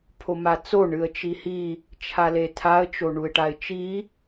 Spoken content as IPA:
pʰ o m a t͡s o ɳ ɨ ə̯ t͡ʃ i h i | t͡ʃʰ a l e tʰ a ə̯ t͡ʃ o ɳ u ɪ̯ ʈ a ɪ̯ t͡ʃ i

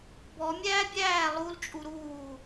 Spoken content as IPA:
b ɔ mʲ æː bʲ æː lˠ u l t͡ʃʼ u ɾ uː

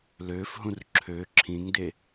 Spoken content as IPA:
l ø f ɦ ũ r ǁʰ ø ǁʰ ĩ ŋ d e

